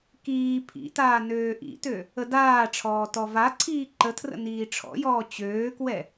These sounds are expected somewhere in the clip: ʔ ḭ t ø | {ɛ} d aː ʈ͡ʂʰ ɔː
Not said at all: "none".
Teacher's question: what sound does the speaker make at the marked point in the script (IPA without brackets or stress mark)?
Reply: ə